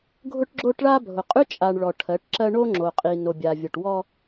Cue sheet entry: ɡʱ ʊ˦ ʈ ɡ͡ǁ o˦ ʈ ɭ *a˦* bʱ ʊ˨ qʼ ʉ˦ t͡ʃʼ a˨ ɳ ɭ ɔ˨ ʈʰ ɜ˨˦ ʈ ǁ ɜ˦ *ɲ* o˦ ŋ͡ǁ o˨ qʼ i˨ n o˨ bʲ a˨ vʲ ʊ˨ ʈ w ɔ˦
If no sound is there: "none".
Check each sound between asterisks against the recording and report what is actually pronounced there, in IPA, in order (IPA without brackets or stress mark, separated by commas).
a˦, ɳ